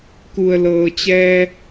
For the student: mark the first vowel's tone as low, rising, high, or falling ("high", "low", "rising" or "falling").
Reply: low